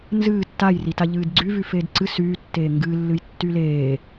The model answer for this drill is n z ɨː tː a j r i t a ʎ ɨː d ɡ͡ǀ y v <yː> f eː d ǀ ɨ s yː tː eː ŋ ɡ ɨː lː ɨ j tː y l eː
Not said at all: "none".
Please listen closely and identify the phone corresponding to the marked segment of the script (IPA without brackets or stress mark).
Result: y